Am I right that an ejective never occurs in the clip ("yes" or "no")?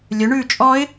no